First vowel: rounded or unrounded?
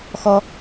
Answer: rounded